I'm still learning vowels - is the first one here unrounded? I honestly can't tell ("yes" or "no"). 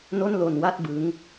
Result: no